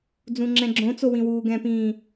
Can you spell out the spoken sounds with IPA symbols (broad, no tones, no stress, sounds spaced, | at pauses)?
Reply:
d͡z ũ ŋ͡ǁ ɛ̃ ɡ͡ǁ õ t͡s o w ĩ w uː ɡ ɛ̃ p ĩː